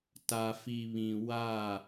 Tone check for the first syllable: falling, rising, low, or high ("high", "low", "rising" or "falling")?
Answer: low